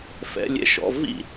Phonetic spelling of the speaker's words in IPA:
f ɛ̰˧˥˧ lʲ ɛ̰˥˧ ʃ ɔ̰˧˥˧ v ḭ˥˩

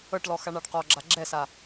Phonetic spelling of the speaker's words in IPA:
ɤ ʈ l ɔ x a ɳ a ɖ q ɔ ɡ͡ǁ a ɡ͡ǁ ɛ s a

